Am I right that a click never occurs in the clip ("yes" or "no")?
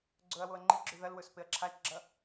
no